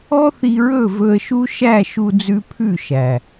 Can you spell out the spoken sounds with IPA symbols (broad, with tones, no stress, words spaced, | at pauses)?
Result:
ɔ˦θi˧ɹɵ˦˨ vɵ˧ə̯ʃu˦ ʃæ˦˨ ʃu˧d͡zʉ˧ pʰʉ˦˨ʃæ˨